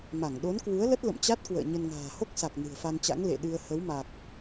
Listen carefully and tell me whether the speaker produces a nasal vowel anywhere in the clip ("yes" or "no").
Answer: no